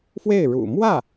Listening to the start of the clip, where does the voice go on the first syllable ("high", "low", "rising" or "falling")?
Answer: falling